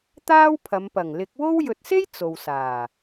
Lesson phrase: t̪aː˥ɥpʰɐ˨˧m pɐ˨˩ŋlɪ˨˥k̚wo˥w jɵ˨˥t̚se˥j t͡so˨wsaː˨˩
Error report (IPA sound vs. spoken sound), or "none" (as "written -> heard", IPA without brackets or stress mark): ɥ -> w